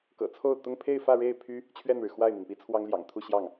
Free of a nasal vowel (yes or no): yes